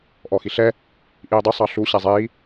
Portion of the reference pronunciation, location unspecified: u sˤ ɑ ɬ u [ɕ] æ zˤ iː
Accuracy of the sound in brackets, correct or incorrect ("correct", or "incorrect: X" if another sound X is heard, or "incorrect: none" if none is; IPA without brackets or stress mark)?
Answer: correct